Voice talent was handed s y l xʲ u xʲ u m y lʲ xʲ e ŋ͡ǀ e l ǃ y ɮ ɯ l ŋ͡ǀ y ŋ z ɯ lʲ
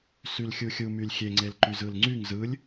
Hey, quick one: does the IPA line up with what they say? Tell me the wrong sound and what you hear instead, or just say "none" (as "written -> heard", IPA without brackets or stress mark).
ɮ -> z